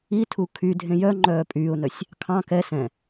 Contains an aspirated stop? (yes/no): yes